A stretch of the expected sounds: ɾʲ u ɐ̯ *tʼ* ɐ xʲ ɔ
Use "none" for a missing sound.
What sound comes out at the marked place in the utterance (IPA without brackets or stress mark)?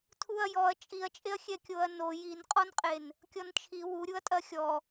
tʼ